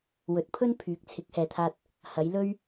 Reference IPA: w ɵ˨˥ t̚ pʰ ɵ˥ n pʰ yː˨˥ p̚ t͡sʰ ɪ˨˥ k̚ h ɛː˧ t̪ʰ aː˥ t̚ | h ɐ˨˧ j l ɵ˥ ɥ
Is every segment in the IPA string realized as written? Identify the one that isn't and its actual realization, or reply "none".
p̚ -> k̚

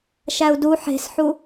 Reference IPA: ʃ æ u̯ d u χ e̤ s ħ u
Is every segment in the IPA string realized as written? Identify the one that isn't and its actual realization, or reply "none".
χ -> ħ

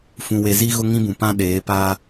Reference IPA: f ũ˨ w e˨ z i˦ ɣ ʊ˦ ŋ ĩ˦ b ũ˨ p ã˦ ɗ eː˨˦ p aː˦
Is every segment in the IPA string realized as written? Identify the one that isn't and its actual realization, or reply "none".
none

